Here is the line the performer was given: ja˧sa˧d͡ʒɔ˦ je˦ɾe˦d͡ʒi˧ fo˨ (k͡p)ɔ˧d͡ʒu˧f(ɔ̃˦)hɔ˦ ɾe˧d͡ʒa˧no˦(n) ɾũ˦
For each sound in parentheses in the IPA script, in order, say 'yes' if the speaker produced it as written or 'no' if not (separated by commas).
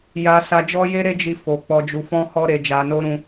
yes, yes, no